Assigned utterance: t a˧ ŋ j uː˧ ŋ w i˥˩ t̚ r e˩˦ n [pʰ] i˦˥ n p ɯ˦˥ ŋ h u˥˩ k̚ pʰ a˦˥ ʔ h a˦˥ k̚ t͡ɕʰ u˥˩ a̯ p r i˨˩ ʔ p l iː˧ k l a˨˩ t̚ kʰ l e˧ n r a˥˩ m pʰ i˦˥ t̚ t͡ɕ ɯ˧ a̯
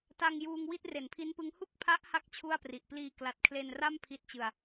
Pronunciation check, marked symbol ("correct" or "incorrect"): correct